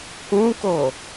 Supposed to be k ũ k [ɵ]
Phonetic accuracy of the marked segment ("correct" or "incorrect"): incorrect